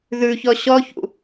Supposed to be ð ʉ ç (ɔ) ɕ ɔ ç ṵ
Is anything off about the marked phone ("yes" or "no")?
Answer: no